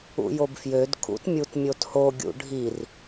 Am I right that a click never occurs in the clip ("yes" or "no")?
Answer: yes